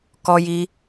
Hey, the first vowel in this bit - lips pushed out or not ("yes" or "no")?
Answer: yes